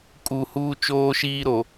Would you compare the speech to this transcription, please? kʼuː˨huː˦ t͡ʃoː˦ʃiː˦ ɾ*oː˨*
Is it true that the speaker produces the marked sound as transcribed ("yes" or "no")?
no